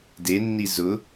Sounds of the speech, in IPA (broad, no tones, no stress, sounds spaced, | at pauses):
d e nː i z ʊ